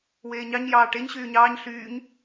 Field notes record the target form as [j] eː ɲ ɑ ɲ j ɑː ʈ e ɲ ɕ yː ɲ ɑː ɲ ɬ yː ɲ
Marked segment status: incorrect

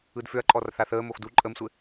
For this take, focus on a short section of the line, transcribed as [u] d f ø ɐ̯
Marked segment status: incorrect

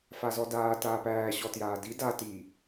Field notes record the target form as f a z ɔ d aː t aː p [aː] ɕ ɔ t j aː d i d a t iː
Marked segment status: incorrect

